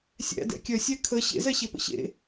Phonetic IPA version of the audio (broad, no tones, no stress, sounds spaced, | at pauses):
sʲ æ̰ d ɛ̰ kʲ œ sʲ æ kʰ ə ɕ ḛ z ɛ ɕ e p ə̰ ɕ ḛ